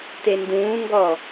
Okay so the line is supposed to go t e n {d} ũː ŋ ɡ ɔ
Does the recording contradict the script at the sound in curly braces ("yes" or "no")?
no